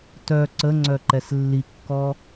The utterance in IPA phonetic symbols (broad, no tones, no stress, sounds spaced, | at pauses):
t œ ǀ ə ŋ͡ǀ œ ǃ ɛ s lː i kː ɔ